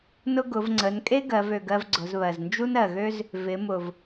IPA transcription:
nʊ˥ ɡʊ˩˧v ŋ͡ǀə˩˧nkʼe˥ ɡɜ˩˧vø˩ɡɜ˧v ɡ͡ǀʊ˩˧zβɜ˩z nd͡ʒu˥nɜ˩ɣø˥z | vɪ˩˧ mʊ˩v

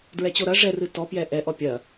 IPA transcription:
dɹɛt͡ɕoɾɐ ʐɛrɨ tɔpjɛ ʔɛʔɔ pʲɐ

